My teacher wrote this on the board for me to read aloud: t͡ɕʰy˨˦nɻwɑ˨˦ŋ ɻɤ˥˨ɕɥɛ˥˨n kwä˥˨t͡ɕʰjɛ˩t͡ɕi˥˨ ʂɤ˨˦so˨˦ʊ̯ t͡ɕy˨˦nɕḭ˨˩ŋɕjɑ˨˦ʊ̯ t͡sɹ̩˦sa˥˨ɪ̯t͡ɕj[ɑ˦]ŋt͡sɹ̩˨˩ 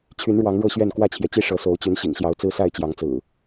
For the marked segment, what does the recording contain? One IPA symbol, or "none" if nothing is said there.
ɑ˨˦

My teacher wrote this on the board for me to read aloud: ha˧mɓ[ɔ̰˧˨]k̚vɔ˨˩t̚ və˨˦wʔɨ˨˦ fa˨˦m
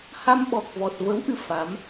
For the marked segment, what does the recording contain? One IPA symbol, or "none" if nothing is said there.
ɔ˨˩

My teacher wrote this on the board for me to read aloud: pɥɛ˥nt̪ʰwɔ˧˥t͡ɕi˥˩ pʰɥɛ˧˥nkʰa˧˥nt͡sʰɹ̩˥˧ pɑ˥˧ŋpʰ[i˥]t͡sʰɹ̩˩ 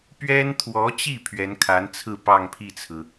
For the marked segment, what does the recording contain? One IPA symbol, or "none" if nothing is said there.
i˥˩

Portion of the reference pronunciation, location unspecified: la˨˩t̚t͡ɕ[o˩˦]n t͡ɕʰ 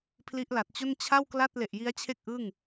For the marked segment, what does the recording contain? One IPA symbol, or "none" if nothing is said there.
o˥˩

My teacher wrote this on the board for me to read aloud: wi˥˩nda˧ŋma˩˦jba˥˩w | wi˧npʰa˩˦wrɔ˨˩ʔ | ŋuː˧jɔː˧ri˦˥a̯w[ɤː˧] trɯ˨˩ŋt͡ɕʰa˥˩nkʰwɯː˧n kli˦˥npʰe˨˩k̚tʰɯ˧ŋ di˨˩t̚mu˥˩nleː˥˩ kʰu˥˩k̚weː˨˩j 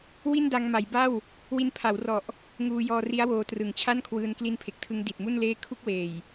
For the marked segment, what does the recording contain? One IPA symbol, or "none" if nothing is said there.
oː˧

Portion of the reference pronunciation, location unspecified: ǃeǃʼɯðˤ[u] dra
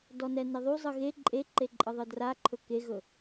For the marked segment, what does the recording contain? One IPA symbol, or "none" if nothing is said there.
ɯ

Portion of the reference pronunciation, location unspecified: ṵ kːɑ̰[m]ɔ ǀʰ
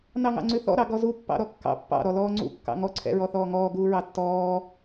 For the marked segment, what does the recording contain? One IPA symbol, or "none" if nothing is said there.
ŋ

